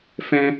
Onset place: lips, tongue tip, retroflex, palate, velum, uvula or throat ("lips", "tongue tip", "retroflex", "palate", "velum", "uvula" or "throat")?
lips